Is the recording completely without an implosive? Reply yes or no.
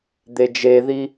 yes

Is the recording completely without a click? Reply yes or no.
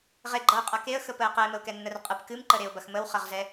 no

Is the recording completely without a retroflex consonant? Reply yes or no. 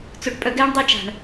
no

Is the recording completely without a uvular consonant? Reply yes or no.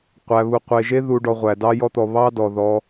no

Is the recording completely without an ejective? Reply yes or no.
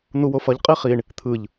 no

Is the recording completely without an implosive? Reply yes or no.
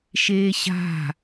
yes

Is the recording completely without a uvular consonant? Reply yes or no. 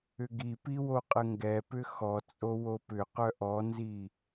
no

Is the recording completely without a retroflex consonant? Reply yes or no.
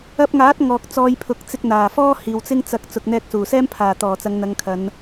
yes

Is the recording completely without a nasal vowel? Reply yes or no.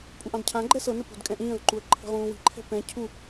no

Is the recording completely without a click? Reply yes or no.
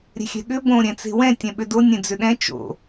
yes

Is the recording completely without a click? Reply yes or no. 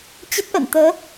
yes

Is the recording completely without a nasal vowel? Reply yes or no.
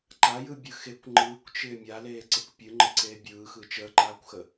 yes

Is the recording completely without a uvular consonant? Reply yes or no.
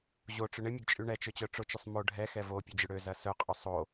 no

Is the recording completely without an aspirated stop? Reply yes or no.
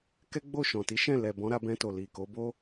yes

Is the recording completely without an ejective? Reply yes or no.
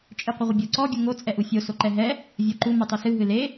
no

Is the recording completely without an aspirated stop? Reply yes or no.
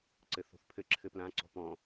no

